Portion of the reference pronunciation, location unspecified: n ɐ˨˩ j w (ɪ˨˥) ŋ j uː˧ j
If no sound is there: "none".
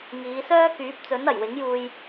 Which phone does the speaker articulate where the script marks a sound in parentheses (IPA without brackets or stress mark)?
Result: ɪ˨˥